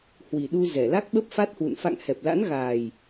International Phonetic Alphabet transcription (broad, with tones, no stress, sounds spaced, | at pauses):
h w i˨˩ ɗ u˧ z ɛ˧˩ l a˦˥ k̚ ɓ ə˦˥ p̚ f a˦˥ t̚ h w ṵ˧˨ n f a̰˧˨ ŋ h ɛ˨˩ p̚ l a̰˧˥ n ɣ aː˨˩ j